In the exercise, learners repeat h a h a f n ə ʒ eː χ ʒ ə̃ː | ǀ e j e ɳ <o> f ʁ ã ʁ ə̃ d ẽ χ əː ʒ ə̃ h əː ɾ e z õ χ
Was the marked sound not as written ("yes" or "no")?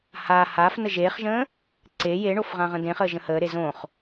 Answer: no